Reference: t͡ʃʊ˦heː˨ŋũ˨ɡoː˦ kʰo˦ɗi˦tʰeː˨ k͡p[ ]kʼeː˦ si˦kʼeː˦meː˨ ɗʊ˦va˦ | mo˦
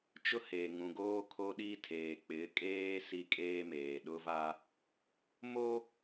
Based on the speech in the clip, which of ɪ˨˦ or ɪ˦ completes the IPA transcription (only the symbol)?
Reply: ɪ˨˦